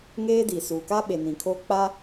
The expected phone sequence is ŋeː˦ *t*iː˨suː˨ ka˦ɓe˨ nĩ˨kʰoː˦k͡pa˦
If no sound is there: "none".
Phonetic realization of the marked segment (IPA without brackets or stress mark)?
d